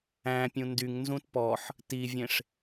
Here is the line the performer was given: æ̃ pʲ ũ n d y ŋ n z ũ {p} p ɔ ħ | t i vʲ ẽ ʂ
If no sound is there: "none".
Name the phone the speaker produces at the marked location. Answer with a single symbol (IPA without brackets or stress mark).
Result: t